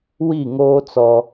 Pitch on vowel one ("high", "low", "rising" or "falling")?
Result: falling